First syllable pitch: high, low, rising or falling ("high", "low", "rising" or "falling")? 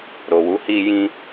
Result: low